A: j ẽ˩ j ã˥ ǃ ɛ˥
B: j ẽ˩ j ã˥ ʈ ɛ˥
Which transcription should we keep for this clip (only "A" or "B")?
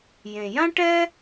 B